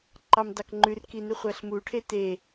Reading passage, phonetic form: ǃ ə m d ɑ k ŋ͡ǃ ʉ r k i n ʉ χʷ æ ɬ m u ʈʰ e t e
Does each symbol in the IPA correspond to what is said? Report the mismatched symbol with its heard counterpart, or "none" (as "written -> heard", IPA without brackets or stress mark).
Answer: ə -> ɑ